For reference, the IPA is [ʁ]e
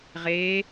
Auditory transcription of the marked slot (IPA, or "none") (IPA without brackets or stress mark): ʁ